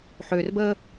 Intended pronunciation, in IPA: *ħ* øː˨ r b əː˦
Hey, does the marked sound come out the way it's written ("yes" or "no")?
yes